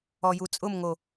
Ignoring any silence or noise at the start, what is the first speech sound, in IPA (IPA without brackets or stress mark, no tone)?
ɔ